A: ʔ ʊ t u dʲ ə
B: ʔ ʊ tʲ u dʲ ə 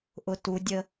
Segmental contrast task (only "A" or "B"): A